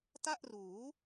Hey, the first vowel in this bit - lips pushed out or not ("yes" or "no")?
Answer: no